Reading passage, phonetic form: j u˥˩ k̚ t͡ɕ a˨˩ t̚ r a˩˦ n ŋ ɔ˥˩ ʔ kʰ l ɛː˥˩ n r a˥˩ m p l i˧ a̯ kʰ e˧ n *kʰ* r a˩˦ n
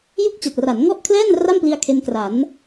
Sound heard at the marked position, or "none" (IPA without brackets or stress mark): k